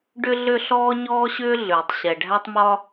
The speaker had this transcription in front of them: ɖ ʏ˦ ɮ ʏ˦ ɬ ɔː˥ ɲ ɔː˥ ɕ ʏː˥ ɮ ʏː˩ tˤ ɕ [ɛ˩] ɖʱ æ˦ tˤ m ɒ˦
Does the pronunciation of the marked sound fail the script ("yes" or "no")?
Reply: no